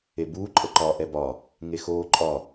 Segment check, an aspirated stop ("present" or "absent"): absent